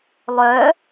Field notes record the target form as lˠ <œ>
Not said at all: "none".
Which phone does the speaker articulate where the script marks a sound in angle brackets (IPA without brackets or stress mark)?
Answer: œ